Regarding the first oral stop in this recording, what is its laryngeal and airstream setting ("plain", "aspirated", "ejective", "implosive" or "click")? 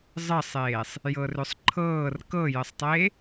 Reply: click